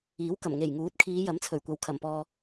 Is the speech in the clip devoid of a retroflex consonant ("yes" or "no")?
yes